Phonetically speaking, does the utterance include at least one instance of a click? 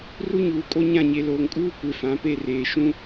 no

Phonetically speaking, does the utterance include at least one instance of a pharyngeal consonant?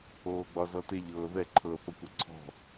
no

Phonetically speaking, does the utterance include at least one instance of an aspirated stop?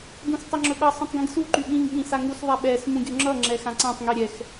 no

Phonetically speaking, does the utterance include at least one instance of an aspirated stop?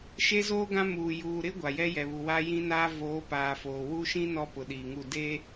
no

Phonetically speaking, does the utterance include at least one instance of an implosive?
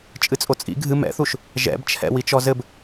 no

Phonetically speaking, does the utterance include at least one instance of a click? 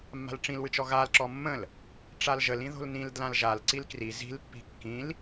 yes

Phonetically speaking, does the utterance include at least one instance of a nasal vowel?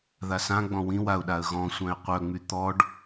yes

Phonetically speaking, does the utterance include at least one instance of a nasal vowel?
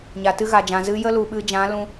yes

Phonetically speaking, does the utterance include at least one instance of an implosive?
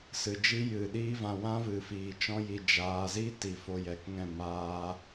yes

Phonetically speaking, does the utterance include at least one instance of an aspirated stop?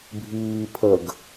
yes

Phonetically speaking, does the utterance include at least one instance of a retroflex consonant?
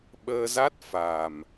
no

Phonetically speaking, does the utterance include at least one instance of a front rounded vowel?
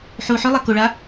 yes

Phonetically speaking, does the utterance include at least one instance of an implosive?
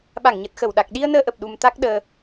yes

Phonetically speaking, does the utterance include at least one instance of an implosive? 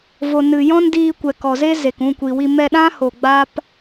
yes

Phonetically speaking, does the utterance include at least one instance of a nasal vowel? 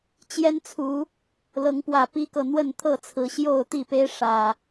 no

